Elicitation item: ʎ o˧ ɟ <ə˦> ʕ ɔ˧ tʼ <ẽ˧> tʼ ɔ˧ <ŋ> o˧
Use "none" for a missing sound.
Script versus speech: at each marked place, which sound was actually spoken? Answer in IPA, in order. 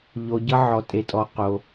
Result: ʌ˦, e˧, q

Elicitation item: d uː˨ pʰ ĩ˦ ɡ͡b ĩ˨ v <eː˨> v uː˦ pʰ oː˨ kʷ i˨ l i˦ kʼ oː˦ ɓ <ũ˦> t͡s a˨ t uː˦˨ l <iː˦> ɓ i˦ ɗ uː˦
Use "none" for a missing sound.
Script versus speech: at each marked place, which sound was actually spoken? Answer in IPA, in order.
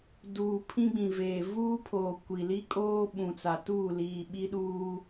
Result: eː˨, ũ˨, iː˨

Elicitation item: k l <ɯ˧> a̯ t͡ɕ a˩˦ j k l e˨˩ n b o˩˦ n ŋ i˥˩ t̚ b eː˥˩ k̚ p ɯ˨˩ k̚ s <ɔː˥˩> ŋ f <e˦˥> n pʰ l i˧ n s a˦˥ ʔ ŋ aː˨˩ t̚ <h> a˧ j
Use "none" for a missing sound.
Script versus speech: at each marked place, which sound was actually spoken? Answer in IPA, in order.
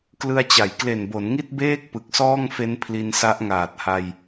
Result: ɯ˧, ɔː˥˩, e˦˥, h

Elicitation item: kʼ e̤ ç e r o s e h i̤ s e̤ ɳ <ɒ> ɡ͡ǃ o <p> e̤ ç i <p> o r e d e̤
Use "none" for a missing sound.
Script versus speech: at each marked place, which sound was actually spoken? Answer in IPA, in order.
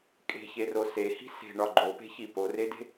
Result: ɒ, p, p

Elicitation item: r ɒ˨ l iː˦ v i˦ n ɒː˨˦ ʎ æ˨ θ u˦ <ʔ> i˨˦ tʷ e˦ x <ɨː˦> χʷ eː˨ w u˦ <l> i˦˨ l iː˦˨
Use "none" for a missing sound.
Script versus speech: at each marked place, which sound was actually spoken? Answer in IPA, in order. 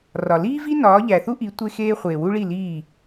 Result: ʔ, eː˦, ɭ

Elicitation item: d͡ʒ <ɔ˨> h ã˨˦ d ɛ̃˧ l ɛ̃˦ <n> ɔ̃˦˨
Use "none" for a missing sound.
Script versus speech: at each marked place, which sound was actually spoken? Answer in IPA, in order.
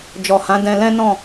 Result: ɔ˨, n

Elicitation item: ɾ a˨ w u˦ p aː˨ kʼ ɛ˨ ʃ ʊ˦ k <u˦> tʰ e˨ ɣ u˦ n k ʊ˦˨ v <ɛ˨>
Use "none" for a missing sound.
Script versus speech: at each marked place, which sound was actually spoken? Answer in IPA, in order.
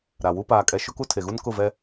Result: u˦, ɛ˦

